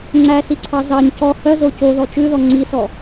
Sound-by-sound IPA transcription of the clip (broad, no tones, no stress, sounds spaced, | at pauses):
ŋ͡ǀ æ s i ǀʰ ɑ z ɑ ɲ c ɔ h œ z o c o ð ɔ t͡ʃ ʉ ð ɔ ŋ͡ǀ i s ɔ